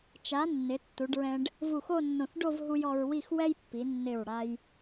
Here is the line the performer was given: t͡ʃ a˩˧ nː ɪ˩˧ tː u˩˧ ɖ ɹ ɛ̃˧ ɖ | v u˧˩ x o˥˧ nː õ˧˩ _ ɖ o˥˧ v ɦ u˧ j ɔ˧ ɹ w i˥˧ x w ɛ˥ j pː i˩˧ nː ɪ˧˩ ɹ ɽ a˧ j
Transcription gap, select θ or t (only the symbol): θ